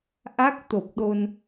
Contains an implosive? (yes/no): yes